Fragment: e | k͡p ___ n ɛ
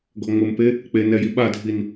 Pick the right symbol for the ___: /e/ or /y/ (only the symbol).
e